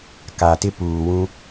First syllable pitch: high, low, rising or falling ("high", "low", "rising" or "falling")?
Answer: low